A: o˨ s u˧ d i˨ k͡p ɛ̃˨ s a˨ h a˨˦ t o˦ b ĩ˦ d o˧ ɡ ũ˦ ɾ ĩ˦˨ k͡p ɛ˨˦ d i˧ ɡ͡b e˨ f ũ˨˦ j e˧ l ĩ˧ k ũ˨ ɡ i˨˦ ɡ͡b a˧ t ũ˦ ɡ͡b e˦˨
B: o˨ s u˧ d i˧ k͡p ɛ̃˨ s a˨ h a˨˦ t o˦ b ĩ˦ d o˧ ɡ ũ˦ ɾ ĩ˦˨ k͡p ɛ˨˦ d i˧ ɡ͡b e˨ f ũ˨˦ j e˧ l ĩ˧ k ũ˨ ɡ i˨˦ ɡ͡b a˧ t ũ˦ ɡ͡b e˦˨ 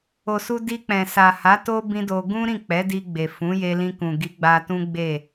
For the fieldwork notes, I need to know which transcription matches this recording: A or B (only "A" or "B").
B